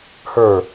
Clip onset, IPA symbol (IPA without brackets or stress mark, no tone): h